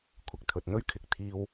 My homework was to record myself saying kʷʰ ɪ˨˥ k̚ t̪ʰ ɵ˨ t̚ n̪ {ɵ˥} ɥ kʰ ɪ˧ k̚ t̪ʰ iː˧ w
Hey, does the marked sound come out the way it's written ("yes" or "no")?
yes